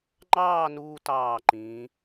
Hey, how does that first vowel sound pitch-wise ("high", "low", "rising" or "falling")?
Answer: falling